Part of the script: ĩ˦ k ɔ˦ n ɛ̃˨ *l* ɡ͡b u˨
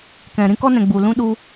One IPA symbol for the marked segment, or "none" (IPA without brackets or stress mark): none